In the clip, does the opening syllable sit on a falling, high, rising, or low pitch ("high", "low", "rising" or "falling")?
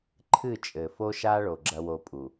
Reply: falling